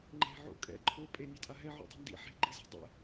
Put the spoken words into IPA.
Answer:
ŋ͡ǃe̤ʕo̰ kʼɛ̰ ǃʰo pʼenʲatʼa ɦɛʕo̰dˤi̤ ndḭ ħe̤ɡ͡ǃize̤ dˤɛ̰

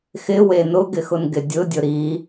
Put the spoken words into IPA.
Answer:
xɪwe nʊɡɪ xʊnɡɪdʲʊdʲʊ ɾi

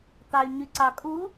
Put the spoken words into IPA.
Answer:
t̪ɑy̯ɲyǀɑkʼu

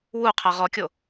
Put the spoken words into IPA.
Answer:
wu qʰaʁɔkʲo

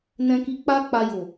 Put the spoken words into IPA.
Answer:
nɛ̃˧ki˧ k͡pa˦ k͡pa˧ jo˨

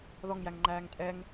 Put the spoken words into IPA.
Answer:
ðɔŋjæŋŋ͡ǃæːŋ tʼɛŋ

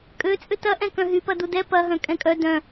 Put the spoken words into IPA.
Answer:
kʼøt͡sʼʏ tɐ ʔɛ̃kœ̃ɦypɐ dudɛ pɐɦœ̃ kʼɛ̃kʼœ dœ̃

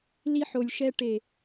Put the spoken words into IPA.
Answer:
li˧ħo˨lʲʃɛ˧ ʈe˨

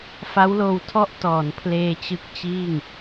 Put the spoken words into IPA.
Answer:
fa˦˥wloː˧wtʰɔ˥˩ʔ tɔː˩˦n pʰleː˧t͡ɕɯ˦˥k̚t͡ɕiː˥˩ŋ

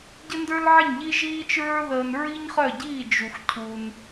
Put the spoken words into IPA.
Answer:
ɟə˥ndə˞˥lʕə˥˩ɲ ʎi˥ʒiː˥t͡ʃɹə˞˥ ðəː˧n ɹi˥ɲχœ˥˩ɟiː˥˩ d͡ʒu˩xcʰu˩n

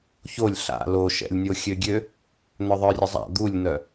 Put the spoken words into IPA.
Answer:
çolʲ ɬa̰ loʃɛ̰lʲnʲo xʲøɡʲø | n̪œðˤœrʲəzˤa̰ d̪ulʲn̪œ

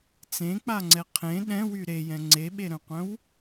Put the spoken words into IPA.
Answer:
t͡sẽk͡paŋ͡ǀɛ qʰẽ ɗɛ̃wy ɾejɛ̃ ŋ͡ǀeɓeɾœ̃qʷœ̃w

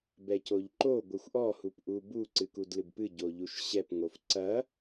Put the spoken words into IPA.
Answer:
bɛcoʎǃo ɡʷɨxʷʔɔ hupʔubu ǀɨkudlɨbpɨ ɟoʎuʃɕɛp ŋofǀɐ

